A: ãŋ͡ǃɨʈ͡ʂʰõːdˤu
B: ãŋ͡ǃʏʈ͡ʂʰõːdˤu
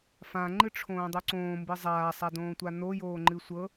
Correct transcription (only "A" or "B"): A